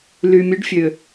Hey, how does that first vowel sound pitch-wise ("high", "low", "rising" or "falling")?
low